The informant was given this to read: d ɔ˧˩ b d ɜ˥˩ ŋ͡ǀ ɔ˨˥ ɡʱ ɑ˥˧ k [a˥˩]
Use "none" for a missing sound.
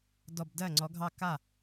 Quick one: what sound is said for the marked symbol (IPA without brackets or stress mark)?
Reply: a˥˩